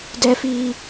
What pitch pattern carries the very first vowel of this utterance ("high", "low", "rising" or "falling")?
high